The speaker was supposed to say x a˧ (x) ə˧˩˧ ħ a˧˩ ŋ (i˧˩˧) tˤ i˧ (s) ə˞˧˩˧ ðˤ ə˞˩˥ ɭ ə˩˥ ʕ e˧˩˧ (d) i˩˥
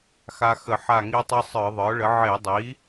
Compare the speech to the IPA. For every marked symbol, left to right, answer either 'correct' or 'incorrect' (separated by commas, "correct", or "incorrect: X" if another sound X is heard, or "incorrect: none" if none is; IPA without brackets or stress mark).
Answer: correct, incorrect: i˧, incorrect: sˤ, incorrect: dˤ